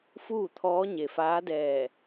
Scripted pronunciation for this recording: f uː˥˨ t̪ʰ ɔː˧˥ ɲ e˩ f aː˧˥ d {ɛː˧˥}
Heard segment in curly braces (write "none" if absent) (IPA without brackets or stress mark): ɛː˧˩